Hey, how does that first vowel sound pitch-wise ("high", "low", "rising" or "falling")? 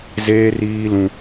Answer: high